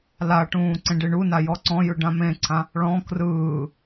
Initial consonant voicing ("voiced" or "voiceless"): voiced